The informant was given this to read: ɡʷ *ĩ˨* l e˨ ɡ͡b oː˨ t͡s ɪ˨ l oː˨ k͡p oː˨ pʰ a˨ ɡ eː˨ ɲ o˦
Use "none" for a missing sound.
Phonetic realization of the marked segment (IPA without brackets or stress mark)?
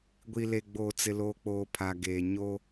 i˨